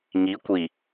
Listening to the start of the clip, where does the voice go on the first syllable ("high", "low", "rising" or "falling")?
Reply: rising